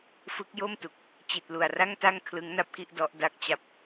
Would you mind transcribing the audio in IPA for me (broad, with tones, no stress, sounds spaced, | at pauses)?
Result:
f ɯ˦˥ k̚ j o˥˩ m t u˨˩ k̚ | t͡ɕ i˨˩ t̚ l u˨˩ a̯ r a˥˩ ŋ t a˥˩ ŋ kʰ l ɯ˦˥ ŋ n a˥˩ p̚ k i˥˩ ʔ d ɔ˦˥ ʔ d a˥˩ k̚ t͡ɕ a˥˩ p̚